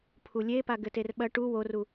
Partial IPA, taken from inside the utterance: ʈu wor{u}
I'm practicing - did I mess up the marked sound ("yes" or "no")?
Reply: no